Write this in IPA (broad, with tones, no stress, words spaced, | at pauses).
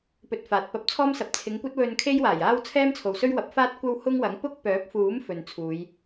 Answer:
pɵ˧t̚faː˨t̚ pɐ˧p̚t͡sʰɔː˥msɐ˨p̚ t͡sʰɪ˨˧ŋkʷɐ˥t̚wɵ˧n kʰe˥jwaː˨˩jaː˥w t͡sʰɛː˥mt͡sʰo˨wsɵ˥ɥ wɐ˨˥p̚faː˥t̚ kʷɐ˥w hʊ˥ŋwɐ˨˥ŋ pʊ˥k̚pœː˨˥p̚fuː˨˥m fɵ˨nt͡sʰuː˨˧j